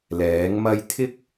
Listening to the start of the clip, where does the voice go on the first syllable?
rising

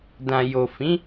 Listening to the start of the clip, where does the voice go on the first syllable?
low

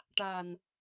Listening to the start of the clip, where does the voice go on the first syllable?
low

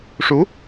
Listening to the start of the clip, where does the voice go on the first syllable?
rising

